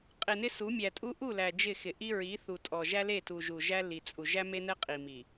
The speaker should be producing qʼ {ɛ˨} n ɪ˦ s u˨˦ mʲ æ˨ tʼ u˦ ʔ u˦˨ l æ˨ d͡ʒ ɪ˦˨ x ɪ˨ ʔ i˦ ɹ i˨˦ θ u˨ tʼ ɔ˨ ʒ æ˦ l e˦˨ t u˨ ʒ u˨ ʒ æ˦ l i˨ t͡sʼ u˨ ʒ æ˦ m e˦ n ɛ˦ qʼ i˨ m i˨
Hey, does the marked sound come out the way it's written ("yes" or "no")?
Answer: no